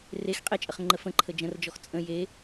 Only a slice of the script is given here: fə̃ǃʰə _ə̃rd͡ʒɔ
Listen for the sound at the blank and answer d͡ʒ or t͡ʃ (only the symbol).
d͡ʒ